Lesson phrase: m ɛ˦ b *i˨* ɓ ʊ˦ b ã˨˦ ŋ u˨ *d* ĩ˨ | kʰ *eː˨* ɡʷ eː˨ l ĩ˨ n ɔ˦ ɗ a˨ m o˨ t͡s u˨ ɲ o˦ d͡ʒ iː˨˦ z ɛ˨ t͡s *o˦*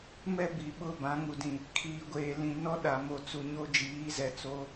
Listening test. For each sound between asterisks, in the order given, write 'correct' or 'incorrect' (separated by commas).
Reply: correct, correct, incorrect, incorrect